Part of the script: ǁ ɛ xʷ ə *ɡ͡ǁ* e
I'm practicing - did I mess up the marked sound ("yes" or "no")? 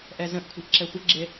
no